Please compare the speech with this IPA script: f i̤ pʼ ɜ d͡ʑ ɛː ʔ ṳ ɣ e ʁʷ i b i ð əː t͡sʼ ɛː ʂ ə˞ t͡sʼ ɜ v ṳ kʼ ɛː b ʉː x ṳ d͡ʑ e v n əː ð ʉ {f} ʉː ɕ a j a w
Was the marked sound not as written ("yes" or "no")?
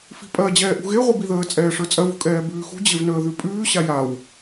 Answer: yes